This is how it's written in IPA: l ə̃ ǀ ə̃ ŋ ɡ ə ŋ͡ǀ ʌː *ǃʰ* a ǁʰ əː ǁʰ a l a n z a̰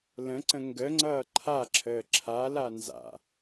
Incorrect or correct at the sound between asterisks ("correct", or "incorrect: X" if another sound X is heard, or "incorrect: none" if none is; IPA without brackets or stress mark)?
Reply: correct